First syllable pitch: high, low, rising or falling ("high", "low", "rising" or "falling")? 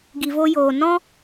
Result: low